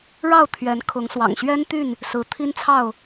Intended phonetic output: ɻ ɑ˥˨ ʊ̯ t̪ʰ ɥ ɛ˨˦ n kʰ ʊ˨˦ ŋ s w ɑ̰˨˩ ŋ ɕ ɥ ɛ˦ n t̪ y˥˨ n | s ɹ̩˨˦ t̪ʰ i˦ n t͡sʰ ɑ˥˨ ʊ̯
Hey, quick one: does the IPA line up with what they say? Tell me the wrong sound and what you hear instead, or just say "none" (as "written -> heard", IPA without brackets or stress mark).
none